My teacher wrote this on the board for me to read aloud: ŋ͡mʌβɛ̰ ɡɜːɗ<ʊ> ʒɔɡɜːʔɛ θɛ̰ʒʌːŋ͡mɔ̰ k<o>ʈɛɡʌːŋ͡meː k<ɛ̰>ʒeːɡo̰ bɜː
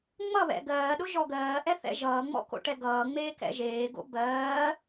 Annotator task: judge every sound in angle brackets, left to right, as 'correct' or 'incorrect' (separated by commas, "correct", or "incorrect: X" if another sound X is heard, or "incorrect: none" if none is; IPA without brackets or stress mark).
correct, incorrect: o̰, correct